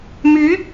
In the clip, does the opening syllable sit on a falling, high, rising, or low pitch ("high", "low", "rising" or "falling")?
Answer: rising